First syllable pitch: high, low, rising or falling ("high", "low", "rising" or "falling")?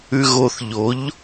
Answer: low